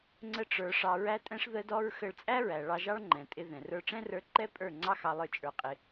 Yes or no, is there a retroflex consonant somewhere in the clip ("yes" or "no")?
yes